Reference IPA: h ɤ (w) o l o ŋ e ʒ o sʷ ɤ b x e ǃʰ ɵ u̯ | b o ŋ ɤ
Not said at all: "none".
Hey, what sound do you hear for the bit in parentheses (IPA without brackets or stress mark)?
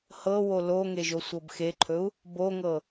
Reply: w